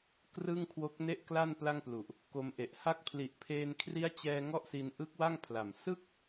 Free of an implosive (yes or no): yes